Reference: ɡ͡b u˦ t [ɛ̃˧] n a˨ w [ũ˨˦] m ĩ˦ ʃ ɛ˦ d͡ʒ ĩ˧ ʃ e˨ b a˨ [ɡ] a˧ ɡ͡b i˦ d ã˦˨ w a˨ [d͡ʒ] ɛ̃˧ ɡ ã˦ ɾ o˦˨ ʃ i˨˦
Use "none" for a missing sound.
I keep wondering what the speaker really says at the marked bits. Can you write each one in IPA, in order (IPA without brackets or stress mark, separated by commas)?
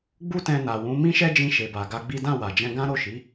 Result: ɛ̃˧, ũ˨˦, ɡ, d͡ʒ